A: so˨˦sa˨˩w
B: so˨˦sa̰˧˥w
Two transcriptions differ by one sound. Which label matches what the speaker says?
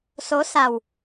A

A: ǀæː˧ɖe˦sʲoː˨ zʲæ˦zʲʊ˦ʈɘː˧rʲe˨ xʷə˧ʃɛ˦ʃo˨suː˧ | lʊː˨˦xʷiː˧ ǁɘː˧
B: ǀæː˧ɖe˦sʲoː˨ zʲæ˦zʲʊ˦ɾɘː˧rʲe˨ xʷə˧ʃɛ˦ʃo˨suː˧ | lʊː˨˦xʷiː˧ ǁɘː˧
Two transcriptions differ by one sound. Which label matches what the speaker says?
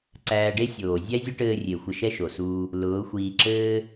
A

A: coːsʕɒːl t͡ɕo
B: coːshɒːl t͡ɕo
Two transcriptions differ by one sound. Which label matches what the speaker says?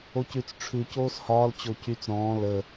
B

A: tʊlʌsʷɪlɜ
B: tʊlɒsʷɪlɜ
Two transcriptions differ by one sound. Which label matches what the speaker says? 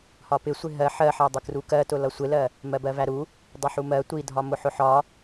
A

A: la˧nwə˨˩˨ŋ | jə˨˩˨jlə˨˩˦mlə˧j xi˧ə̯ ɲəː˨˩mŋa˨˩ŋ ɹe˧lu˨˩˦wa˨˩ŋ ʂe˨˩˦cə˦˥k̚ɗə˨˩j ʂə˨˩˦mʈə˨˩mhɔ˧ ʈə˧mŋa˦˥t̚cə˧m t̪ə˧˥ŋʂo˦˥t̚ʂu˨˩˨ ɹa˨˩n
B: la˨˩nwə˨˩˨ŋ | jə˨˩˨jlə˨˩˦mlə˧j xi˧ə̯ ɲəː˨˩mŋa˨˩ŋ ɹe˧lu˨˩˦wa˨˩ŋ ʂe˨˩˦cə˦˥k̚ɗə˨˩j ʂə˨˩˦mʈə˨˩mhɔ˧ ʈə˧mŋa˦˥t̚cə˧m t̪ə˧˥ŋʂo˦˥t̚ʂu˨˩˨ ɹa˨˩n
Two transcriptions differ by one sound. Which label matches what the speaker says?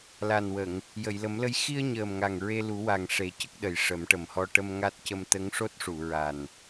B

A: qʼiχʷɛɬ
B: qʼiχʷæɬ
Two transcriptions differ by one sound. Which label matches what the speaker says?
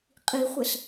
A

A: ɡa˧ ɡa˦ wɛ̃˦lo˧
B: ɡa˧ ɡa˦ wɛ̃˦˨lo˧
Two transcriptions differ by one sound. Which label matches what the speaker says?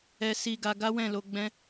B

